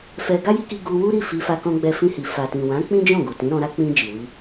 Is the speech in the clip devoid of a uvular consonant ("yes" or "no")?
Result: yes